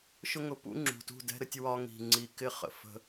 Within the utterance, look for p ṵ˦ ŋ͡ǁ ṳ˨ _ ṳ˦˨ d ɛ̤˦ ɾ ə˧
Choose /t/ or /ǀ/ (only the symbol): t